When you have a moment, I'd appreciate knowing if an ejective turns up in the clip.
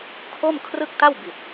no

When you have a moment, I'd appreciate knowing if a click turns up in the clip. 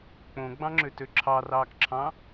yes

